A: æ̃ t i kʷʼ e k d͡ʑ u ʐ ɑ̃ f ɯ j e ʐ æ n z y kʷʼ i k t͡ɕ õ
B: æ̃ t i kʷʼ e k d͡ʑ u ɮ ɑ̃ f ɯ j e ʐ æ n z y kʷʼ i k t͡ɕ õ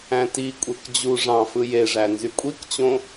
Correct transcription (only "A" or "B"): A